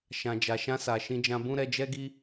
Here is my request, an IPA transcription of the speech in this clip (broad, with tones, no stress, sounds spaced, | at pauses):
ʃ ã˨ d͡ʒ a˨ ʃ ã˧ s a˨ ʃ ĩ˧ d͡ʒ ã˧ b ũ˦ ɾ ɛ˧ d͡ʒ ɛ˦ ɡ i˦